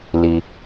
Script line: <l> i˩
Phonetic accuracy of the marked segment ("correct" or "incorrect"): correct